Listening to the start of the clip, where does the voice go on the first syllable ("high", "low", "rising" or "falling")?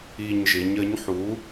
low